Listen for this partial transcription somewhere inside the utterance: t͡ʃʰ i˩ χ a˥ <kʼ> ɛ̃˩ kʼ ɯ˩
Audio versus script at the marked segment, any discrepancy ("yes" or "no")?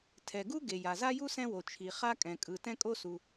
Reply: no